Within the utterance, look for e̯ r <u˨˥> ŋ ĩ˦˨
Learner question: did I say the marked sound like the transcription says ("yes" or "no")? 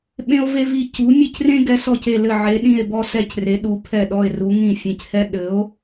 yes